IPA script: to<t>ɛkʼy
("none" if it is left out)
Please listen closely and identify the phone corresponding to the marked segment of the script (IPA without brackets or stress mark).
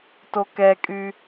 k